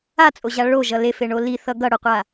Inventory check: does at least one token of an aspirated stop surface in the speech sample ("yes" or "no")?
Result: no